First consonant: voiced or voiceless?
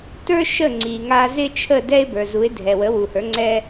voiceless